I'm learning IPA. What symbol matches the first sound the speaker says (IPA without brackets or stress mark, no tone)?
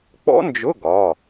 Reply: k͡p